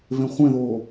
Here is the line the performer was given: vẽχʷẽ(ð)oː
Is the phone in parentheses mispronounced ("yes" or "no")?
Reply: no